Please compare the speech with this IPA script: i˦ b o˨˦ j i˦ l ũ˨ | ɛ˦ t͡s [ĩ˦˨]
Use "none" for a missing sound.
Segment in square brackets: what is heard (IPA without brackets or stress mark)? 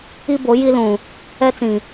ĩ˨